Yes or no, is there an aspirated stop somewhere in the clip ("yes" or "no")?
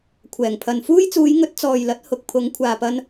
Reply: yes